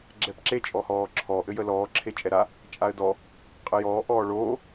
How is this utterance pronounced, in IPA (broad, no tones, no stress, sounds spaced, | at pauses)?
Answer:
ɡ͡ǁ ɛ p ǁ e t͡ʃʼ ɔ h ɔː ǁʰ ɔ ʔ ɘ j ə l ɔː ǁʰ e t͡ʃʼ ɛ ɾ a | t͡ʃʼ a ə̯ d ɔ | qʼ ə j ɔː ʔ ɔː ɭ oː